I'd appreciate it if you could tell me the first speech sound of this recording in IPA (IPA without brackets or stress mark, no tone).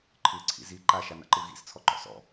ǃʰ